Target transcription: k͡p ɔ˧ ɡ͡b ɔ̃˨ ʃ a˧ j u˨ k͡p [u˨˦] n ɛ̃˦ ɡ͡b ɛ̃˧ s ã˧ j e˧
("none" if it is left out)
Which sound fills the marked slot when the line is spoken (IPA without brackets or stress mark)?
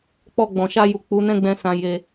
u˨˦